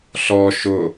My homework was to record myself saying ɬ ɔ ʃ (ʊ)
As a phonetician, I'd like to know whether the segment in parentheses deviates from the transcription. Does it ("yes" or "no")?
no